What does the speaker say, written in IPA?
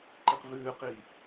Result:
ǃ i q v ʉː q iː

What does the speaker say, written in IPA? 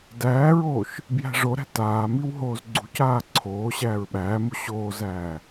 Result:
d æː ɹ oː ʃ | b j æ̤ ʐ o ɾ æ̤ t aː m i w ɦ oː z ɡ͡ǀ ṳ c aː ǀʰ oː ɕ æː ɹ ɓ æː m u ɕ oː z æː

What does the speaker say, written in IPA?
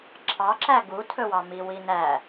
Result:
ǁʰ ɑ ǁ æ ɡ u tʰ ɵ w ɑ m i w i n æ

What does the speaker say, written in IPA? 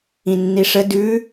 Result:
ĩ nː i ʂ ə d ʉ

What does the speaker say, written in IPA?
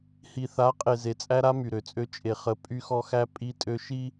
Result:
h i˨ θ a˨˦ qʼ e˨ z e˨ t͡sʼ æ˦ ɾ a˦ m y˨ ɾ ø˨ t͡sʼ ø˦ t͡ʃʼ e˨ χ ə˨˦ pʼ y˦ x ɔ˦ x æ˦ pʼ i˦ tʼ ø˦ ʃ i˦

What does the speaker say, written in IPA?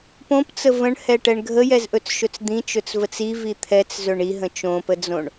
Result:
p õ p t͡s ə v ə̃ ɳ h ɛ ʈ ɛ ɳ ɡʱ ə j ɛ z ʔ ɵ t͡s ʃ ɵ t͡s d̪ ĩ t͡ʃ ɵ t͡s v ə t͡s i v i t̪ʰ ɛ t͡s z ɵ ɳ i ɦ ə̃ t͡ʃ õ p ə d͡z õ ɳ

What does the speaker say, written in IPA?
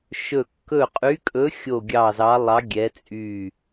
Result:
ʃ ɵ˦˨ kː ɵ˦˨ qʼ y˧˥ kʼ ɵ˧˥ xʲ o˦˨ ɡʲ ɑ˦˨ z ɑ˧˥ lˠ ɑ˧˥ ɡʲ ɛ˧˥ t͡sʼ y˦˨

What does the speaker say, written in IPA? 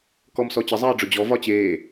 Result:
k ɔ m s ɔ t͡ɕ ə zˤ eː ɖ͡ʐ ʊ d͡ʑ ɔ v ɒ t͡ɕ eː

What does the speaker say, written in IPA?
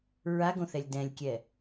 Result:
ɹ a ɡ õ θ ɛ lʲ d ɛ̃ lʲ kʲ ɛ

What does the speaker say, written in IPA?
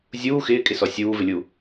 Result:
zʲ uː x ɪː kʼ ɪ s ɔ sʲ uː v ɪ lʲ u

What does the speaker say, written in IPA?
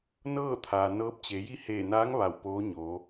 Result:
n ɤː˥˨ t̪ʰ aː˩ n ɤː˧˥ p̚ t͡ɕ e˩˧ j i˥˨ h eː˧˩ n aː˧˥ ŋ ʋ a˧˩ w p oː˧˥ ɲ oː˩˧

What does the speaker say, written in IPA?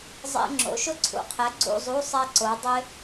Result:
zˤ ḛ˥ ŋ͡ǁ o̰˨˥ ʃ ʊ˥ ǀʰ ṵ˨˥ qʰ ɛ˨˥ ɡ͡ǀ ṵ˧˥˧ zˤ u˧˥˧ sˤ ɛ˥ ǀ o˨˥ dˤ ɪ˥

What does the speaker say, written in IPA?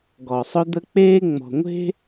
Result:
ɡ ɔ˨ sˤ ʊ˦ d̪ ə˦ k͡p eː˦ ŋ͡m ɔ̤˨ ŋʷ e̤˦

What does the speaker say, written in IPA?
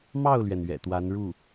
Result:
m ɑ˥˩ ʊ̯ l ɥ ɛ˩ n ɥ ɛ̰˨˩ t̪ w a˧˥ n ɻ u˥˩

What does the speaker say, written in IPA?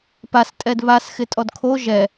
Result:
p a s tʼ ɛ d β a s x ɪ tʼ ɔ d kʰ o ʒ ɛ

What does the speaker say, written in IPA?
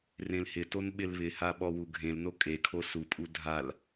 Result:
r ẽ l h ɪ t o n ɓ ɪ l β ɪ h a ɓ ɔ w u ɡʱ ẽ l n o kʼ e kʰ o s u pʼ u dʱ a l

